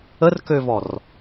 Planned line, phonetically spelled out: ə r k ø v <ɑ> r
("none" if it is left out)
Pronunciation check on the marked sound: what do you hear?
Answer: ɔ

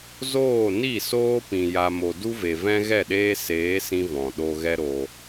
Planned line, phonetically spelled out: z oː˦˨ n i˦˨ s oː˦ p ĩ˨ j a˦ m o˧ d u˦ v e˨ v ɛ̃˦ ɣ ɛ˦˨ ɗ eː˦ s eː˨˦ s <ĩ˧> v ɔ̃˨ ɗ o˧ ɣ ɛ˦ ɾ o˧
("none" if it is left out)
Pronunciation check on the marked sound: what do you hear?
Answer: ĩ˧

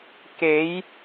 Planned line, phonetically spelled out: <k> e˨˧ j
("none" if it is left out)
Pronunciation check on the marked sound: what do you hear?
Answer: k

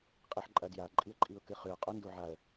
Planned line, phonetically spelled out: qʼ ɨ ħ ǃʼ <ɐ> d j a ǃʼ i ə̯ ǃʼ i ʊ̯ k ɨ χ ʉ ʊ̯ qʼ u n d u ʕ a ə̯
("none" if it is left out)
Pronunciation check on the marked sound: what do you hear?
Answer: ɐ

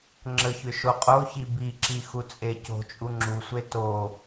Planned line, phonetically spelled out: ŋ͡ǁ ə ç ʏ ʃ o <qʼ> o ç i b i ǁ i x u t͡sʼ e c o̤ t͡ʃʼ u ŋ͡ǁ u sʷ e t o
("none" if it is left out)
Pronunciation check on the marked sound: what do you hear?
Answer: qʼ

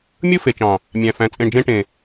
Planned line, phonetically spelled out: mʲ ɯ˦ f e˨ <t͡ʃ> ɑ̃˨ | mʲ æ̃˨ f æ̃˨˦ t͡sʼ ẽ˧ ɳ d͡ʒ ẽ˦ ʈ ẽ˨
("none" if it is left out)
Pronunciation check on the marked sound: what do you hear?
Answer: t͡ʃ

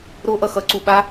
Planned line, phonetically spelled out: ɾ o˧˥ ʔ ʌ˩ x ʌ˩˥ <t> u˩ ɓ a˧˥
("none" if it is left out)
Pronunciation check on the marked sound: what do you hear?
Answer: ǀ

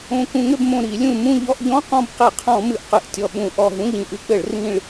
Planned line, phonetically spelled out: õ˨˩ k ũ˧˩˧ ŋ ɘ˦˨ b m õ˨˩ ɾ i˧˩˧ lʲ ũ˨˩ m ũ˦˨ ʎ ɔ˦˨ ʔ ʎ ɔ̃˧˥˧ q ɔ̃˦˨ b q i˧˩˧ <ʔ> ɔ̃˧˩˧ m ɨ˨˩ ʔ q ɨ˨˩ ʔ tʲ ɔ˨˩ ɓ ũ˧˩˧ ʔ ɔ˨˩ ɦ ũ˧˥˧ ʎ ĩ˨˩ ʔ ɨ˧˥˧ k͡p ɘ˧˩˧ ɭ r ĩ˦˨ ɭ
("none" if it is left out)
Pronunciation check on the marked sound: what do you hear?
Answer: qʰ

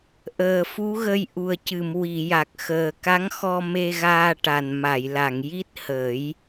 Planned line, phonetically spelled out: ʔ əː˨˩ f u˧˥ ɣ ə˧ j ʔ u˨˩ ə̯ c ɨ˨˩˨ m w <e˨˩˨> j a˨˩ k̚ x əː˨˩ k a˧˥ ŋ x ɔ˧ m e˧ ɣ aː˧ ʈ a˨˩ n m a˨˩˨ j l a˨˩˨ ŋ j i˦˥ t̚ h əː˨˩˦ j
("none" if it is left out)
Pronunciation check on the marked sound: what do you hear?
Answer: i˨˩˨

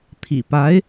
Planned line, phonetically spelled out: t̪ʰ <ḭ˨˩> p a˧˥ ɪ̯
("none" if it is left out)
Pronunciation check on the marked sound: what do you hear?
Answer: ḭ˨˩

